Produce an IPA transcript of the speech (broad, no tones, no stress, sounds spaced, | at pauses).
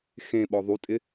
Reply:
x ẽ ɓ ɔ ðˤ u tʼ ɪ